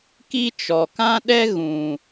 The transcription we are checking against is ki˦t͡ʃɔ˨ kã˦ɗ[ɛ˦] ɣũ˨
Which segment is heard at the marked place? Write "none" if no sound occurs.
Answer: ɛ˦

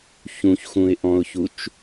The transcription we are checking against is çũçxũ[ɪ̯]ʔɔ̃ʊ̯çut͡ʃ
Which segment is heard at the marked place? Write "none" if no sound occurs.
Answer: ɪ̯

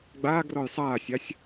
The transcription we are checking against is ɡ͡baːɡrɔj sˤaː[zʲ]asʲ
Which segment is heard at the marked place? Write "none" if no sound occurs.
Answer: sʲ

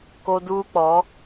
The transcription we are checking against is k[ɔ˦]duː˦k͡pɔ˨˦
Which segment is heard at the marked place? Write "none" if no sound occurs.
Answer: o˦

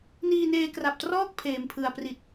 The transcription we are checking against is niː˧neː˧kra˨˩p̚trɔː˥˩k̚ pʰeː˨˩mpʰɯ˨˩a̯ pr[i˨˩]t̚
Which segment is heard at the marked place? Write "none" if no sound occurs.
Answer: i˨˩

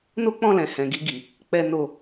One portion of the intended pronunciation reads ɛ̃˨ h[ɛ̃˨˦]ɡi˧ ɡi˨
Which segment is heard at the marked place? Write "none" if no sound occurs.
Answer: ɛ̃˨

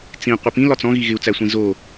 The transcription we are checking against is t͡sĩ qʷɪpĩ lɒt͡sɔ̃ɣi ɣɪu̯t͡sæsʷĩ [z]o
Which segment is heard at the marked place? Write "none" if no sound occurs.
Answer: z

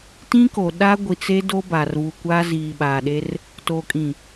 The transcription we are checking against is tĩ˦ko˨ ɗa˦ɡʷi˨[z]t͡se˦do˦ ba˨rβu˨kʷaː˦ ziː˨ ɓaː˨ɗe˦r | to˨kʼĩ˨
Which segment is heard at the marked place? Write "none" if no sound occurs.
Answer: none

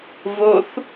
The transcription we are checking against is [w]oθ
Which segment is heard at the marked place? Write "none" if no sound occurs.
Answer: v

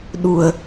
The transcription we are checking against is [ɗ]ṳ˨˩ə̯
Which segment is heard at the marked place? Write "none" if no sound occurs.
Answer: ɗ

